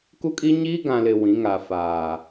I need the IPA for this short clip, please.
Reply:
ku˦kʼi˦ɲi˦ ɡã˨lɪ˨ wĩ˨˦ŋa˨faː˨

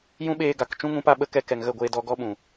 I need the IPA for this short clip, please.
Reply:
jũ˦ɓeː˧ɡa˨k t͡ʃũ˦ŋũ˨˦pa˧ ɓə˧kɛ˧ kɛ˨ŋɣə˦˨ɡʷeː˧dɔ˧ ɡɔ˦ɓũ˨

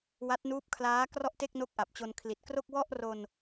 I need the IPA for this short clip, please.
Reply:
wa˦˥t̚nuː˦˥p̚kʰlaː˦˥ krɔ˥˩ʔte˥˩k̚ no˥˩k̚ʔa˨˩p̚t͡ɕo˧n kʰli˨˩t̚kro˥˩k̚ wɔ˥˩ʔro˧n

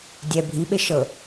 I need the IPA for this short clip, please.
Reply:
dʲɛ bʱiɓe ʃɤ

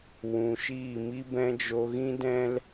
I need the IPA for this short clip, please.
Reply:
wũ˨ ʃiː˦˨mi˦bɛ̃˦ d͡ʒo˧ɣĩ˦dɛ̃˦l

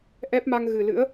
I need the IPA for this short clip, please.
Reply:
ʔɛ˦˥p̚ma˧ŋɣɨ˨˩lɨ̰˧˥ə̯

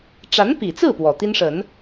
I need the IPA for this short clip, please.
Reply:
ʈ͡ʂa˧˥npi˨˩t͡sɹ̩˥˩ pwɔ˨˩t̪i˥nʂə˨˩˦n

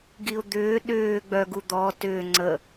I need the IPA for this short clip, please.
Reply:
ɡiʊ̯d̪ʏː ɗʏː ɡ͡bœɡu d̪ɔ tʏː ŋ͡ǀə

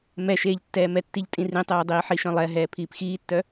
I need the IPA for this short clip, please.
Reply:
mɛʃeːʎtːɛːmɛ tːiʎtʼĩrĩtˤɛː dˤiːħiʃœ̃lˠɛ ɦɛːpʰiːpxiːtːœ

